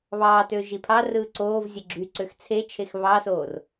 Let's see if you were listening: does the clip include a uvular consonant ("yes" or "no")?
no